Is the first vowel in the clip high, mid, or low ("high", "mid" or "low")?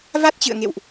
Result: low